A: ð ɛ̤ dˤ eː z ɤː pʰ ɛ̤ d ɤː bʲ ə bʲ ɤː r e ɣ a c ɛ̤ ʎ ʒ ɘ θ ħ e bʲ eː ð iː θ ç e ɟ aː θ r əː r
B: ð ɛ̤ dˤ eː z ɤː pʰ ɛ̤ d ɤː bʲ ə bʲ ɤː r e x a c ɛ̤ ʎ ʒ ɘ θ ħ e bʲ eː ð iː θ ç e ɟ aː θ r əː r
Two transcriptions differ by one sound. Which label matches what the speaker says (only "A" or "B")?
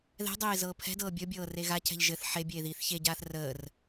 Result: A